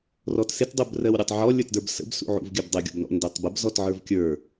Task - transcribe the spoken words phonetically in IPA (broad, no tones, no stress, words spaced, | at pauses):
rɔtsɪt dˤubrɜwɾʲutˤʕɔ lʲə˞tdə˞bsə̰b sṵʕṵvɡʲɜbdˤə ɡʲɔ̰bnɔ̰ndɜtˤbəb zɔtʕə˞vkʲə˞